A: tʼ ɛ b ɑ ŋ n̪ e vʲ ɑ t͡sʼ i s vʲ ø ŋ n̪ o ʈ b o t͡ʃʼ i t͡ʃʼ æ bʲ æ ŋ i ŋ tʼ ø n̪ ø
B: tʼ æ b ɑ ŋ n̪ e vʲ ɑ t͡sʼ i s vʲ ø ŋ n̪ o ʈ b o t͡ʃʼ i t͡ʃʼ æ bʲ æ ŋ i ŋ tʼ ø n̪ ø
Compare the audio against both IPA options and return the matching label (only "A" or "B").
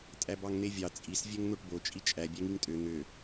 B